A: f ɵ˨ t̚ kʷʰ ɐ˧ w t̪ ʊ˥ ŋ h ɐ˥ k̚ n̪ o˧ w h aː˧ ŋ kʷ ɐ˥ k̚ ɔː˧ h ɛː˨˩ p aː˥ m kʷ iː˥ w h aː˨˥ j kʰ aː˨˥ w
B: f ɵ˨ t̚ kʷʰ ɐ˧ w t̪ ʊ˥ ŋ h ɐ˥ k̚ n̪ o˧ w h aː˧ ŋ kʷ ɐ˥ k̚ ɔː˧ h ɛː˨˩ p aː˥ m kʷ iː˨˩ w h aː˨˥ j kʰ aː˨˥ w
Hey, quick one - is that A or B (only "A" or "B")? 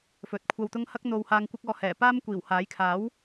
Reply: B